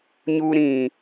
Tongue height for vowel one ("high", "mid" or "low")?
high